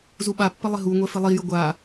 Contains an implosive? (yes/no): yes